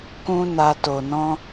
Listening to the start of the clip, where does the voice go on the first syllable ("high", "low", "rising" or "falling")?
high